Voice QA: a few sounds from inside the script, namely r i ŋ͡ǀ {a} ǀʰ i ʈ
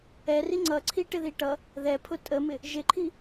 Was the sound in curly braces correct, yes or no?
no